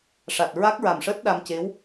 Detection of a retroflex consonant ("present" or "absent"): present